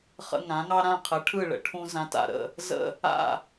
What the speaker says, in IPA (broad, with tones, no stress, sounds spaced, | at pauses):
χ ə̰˧ ŋ ã˩˥ ŋ ɑ˥ ɾ ã˥˩ qʰ ə˩˥ ʈʰ ɯ˥˩ ɭ ə̰˩ ʈʰ ũ˧ z ã˧ t a̰˥˩ ɾ ə̰˥˩ | z ə̰˥˩ | a̰˥˩